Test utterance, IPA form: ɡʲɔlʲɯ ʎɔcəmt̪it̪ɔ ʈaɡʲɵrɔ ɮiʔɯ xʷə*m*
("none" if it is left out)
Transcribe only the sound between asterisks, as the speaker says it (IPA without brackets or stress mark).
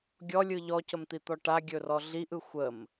m